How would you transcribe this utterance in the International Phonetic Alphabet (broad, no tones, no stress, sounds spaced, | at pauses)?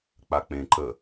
k͡p a k͡p ẽ ǃ ə